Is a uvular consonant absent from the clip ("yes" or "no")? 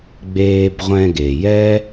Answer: no